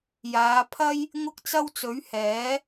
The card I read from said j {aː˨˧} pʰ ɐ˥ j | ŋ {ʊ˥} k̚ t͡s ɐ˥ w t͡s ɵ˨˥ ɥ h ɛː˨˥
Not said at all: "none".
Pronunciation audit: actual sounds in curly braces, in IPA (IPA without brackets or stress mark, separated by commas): aː˨˧, ʊ˥